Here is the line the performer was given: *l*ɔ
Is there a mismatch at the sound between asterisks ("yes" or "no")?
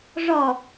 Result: yes